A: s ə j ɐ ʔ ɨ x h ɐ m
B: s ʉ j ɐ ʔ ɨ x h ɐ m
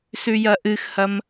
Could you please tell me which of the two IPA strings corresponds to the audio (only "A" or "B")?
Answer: B